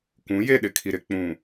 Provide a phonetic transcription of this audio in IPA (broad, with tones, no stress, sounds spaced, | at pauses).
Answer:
kʷ ũ˨˦ j e˦˨ ɗ ɪ˨ kʰ i˨ ɾ ɪ˨ k͡p ũ˨